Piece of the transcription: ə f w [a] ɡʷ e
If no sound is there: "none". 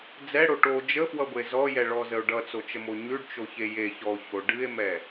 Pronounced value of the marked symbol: ʌ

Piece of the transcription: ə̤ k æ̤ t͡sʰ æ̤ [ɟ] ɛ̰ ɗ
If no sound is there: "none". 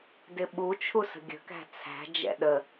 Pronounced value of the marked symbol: d͡ʒ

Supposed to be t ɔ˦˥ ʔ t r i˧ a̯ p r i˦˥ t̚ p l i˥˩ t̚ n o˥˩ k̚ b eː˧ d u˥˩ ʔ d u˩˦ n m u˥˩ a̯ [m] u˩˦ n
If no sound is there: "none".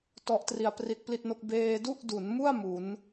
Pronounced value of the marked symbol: m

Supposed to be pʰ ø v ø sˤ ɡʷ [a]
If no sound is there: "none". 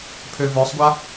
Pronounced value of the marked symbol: a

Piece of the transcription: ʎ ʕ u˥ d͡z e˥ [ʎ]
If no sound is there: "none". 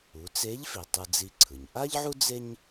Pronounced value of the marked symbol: ɲ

